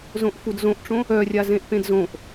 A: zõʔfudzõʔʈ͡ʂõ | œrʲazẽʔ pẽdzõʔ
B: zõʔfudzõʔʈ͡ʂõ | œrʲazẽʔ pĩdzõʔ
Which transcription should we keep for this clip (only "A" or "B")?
A